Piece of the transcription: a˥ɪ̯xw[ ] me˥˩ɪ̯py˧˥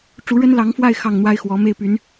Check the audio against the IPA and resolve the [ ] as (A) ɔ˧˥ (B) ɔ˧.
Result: A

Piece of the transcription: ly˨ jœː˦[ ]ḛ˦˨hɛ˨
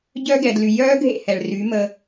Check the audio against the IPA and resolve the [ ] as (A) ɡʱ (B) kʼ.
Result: A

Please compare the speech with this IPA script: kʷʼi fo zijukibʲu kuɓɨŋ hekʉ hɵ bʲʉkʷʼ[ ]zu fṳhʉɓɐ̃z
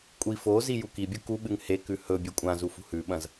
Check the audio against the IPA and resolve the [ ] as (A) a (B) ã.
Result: B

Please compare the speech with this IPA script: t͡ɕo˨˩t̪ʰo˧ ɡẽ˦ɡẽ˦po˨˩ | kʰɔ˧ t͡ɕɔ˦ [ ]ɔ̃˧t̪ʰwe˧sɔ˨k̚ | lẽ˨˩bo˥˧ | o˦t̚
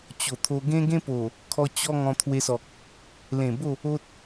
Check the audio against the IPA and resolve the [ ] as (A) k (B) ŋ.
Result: B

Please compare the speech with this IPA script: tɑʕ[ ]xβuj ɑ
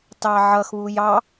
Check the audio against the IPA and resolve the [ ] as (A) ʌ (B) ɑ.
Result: A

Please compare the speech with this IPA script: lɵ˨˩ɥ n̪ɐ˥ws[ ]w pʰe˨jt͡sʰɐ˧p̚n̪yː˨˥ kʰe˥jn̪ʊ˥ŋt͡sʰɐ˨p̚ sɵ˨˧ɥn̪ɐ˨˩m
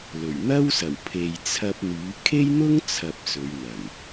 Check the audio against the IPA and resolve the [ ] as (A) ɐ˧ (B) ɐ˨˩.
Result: B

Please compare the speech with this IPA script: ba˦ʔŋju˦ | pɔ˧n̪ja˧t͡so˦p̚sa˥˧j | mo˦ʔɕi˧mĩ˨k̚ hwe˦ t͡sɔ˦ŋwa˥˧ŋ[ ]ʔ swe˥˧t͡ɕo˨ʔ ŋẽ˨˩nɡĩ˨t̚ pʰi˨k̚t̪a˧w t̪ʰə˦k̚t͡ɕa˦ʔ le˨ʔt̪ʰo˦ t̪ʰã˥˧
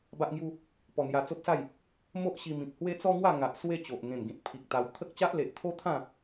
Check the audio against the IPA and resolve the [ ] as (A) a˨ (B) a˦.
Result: A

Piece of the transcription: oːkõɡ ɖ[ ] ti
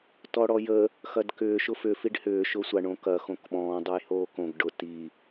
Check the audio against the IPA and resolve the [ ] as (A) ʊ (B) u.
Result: A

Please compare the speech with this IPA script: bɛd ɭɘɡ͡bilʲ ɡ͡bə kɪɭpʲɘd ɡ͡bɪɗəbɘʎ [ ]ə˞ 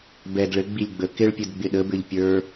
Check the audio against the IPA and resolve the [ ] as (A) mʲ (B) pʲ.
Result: B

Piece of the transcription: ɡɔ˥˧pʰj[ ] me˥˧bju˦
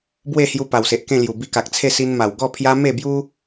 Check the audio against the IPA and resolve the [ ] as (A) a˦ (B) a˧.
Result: A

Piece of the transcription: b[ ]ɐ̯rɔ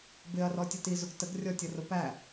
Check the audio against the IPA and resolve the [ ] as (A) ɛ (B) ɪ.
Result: B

